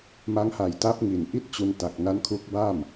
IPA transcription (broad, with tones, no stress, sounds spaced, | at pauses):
m a˦˥ ŋ h a˨˩ j t a˦˥ p̚ ŋ i˨˩ n ʔ i˥˩ t̚ t͡ɕ u˧ n t a˨˩ k̚ n a˦˥ n kʰ u˦˥ k̚ b a˥˩ m